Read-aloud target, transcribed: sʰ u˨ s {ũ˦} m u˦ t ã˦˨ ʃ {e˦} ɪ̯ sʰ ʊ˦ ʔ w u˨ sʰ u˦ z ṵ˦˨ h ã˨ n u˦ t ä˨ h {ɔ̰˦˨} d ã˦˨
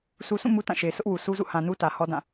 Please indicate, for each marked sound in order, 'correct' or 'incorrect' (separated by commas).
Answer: incorrect, incorrect, incorrect